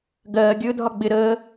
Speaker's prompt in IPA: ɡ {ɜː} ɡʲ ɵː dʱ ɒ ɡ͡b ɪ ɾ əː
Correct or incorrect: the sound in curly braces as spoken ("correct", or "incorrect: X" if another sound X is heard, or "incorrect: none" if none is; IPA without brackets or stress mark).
correct